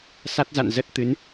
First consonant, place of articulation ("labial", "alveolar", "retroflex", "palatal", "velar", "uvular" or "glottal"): alveolar